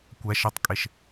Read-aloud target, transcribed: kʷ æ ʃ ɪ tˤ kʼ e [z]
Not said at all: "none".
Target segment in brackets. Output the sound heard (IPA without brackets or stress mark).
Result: ʃ